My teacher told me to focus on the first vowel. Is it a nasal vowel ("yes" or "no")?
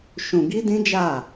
yes